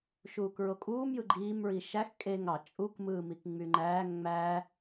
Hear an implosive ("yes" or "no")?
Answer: no